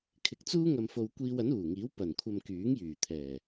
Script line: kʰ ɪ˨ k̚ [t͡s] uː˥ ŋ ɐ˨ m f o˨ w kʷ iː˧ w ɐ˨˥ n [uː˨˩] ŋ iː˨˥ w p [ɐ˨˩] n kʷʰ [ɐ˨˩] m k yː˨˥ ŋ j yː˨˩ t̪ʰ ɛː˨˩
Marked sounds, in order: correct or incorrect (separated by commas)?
correct, correct, correct, incorrect